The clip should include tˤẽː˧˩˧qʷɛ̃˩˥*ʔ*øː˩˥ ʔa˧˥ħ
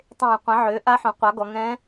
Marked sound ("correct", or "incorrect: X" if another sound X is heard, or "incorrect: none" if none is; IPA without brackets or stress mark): incorrect: ʕ